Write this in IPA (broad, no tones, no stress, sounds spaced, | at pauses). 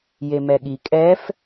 j e m ɛ ɠ i kʼ ɛ f